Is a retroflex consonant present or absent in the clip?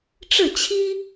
present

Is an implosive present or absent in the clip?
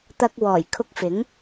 absent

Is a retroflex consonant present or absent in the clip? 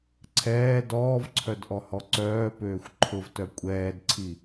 absent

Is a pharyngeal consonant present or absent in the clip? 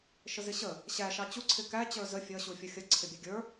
absent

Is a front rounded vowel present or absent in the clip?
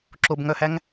present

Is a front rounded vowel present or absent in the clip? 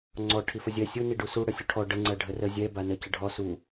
absent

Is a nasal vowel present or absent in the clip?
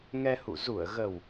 absent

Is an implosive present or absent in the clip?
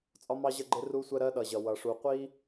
present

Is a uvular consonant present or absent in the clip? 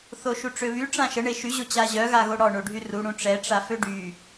absent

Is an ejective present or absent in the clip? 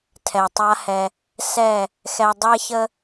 absent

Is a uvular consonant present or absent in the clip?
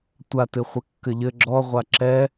present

